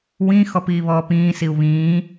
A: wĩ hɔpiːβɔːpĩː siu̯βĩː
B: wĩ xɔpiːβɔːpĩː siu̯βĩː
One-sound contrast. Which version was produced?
B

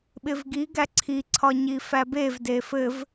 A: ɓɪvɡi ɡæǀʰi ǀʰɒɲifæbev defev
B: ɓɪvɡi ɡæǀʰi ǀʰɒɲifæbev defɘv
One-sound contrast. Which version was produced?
B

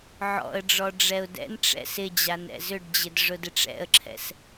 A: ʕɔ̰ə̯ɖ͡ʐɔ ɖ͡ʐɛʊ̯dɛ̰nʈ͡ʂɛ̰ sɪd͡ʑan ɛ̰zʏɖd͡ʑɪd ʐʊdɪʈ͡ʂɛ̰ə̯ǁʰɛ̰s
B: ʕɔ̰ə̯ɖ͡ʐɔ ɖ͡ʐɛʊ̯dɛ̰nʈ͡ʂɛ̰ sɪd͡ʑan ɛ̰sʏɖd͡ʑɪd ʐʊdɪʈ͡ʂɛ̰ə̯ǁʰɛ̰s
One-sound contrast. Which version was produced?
A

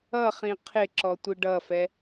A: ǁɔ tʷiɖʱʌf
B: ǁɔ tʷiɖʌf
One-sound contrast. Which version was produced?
B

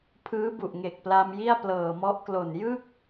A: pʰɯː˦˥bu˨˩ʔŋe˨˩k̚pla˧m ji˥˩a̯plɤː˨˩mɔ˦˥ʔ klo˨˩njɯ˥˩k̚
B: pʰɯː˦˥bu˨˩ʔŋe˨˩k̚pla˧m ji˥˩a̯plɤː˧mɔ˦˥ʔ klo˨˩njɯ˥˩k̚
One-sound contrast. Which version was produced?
A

